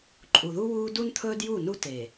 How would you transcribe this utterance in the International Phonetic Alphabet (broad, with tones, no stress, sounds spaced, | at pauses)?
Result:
ǃʼ u˨ ð u˦ w uː˦ d u˦ n t̪ʰ ɵː˦ d j u˦˨ n u˦ t e˨